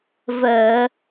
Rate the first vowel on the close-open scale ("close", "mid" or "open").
mid